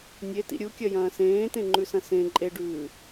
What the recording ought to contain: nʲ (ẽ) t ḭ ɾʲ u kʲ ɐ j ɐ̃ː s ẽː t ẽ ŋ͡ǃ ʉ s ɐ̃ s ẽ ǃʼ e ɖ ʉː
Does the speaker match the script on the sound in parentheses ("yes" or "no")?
no